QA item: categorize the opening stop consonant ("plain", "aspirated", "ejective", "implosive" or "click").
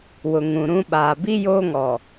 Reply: implosive